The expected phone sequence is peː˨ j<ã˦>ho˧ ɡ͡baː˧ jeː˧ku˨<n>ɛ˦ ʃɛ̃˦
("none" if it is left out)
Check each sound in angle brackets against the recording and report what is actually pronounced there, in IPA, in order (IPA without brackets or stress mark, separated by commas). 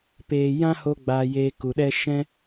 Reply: ã˦, ɗ